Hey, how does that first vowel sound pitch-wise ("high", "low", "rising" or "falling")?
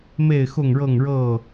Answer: falling